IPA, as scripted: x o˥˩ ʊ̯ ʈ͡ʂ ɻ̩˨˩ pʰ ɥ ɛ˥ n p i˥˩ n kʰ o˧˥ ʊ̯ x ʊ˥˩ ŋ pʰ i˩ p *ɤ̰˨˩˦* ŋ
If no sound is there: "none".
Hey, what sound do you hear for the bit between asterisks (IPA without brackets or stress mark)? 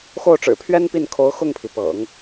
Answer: ɤ̰˨˩˦